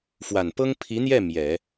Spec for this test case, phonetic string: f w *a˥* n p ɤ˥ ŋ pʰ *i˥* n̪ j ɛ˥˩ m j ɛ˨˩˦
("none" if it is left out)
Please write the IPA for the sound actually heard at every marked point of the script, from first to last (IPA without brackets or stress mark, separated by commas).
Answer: a˨˩, i˧˥